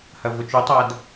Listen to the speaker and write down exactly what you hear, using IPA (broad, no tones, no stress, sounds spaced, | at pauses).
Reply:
h ɐ v ʊ t͡ʃ u tˤ a d